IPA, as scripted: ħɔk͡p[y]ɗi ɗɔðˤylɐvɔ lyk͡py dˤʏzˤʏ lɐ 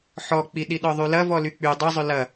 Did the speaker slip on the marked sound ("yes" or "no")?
yes